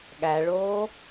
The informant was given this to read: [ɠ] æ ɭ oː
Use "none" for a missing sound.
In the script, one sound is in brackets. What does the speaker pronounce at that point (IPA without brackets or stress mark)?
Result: ɠ